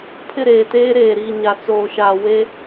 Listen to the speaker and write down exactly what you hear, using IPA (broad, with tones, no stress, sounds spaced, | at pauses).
pʰ ɪ˦˨ ɾ eː˨ t eː˦ ɾ eː˨ ɾ iː˨ ɲ a˨ t͡s oː˨ ʃ aː˨ w e˦